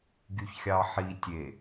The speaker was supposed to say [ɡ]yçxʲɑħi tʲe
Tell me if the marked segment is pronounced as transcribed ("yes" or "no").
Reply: yes